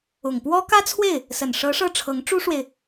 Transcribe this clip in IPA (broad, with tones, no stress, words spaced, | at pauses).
ʊ˨˩ŋpwɔ˥ kä˥t͡sʰwe˥˩ɪ̯ | sə˨˩nʂɤ˧˥ ʂɤ˥˩ ʈ͡ʂʰɤ˧˥ŋʈ͡ʂu˥ʂwe˨ɪ̯